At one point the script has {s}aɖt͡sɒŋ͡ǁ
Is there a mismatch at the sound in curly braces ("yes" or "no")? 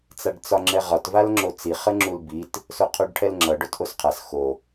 yes